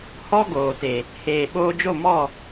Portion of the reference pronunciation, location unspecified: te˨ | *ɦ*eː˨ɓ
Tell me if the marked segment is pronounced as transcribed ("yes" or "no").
no